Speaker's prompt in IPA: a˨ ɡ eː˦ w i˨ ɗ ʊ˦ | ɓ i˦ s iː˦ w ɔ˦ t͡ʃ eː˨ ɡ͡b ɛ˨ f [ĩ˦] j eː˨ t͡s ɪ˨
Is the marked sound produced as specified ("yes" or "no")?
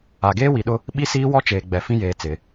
yes